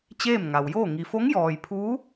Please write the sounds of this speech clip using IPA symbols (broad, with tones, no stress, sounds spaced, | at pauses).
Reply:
t͡ɕ eː˥˨ m ŋ a˩ w j oː˥˨ ŋ i˩ f o˧˥ ŋ j ɔː˩ j pʰ uː˧˥